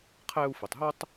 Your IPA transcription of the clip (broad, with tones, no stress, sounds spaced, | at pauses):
qʰ æ˦ u̯ f i˨ tˤ ɦ o˥ tˤ